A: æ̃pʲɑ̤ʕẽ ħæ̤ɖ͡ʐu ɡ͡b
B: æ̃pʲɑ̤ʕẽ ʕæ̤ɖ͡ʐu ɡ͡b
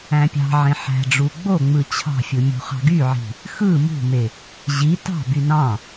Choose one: A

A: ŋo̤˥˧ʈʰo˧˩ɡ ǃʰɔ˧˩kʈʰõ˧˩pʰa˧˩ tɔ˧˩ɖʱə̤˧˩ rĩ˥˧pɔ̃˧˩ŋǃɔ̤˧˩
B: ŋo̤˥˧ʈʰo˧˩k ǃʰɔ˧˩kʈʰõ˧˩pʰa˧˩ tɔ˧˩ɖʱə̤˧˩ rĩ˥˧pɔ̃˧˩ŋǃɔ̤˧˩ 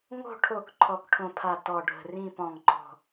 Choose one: B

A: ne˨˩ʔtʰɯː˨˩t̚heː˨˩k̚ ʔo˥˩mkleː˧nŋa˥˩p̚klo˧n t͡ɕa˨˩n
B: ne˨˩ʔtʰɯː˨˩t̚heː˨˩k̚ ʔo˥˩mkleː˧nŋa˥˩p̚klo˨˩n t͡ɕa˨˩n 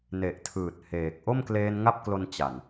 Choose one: A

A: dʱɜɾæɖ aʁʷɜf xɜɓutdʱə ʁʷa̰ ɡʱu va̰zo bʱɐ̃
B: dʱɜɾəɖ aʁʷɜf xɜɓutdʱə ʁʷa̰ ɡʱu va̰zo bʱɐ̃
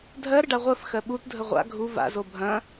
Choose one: B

